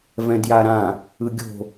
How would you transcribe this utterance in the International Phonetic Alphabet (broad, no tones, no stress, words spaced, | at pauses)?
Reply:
vɛ̃djaɾã | ɯɡʲo̤